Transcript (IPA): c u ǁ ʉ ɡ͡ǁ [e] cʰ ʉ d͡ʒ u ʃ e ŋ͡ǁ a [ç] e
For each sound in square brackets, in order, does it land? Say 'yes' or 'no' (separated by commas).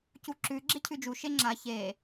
yes, yes